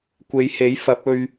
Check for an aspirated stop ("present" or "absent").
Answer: absent